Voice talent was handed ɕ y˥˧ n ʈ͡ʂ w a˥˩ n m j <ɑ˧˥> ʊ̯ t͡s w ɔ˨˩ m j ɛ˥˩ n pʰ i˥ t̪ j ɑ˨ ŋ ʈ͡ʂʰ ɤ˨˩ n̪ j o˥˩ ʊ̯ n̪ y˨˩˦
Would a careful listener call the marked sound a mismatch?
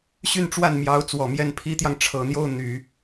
no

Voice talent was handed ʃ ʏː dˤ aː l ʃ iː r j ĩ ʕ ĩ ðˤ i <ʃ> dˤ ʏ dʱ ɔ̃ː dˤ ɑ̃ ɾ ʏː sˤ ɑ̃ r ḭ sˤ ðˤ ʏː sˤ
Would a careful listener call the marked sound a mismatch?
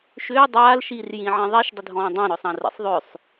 no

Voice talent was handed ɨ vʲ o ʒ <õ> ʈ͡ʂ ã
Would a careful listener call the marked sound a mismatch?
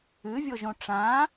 no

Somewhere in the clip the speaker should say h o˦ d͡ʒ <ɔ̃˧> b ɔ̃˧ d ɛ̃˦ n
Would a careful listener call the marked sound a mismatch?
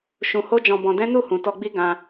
no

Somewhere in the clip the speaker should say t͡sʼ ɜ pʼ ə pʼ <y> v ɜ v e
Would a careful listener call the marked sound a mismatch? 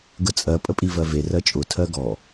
yes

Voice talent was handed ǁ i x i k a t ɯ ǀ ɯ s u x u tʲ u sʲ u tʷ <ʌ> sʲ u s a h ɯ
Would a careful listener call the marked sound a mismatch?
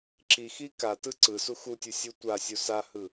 yes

